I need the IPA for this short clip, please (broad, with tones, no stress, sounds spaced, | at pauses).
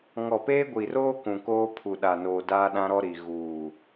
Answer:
ŋ ɔ˨ p eː˦ ɡʷ i˨ r oː˦ k ũ˨ k oː˦ pʰ u˨ ɗ a˨ n oː˨ d aː˦ ɗ ã˦ ɾ ɔ˦ ɾ i˨ ɣ uː˨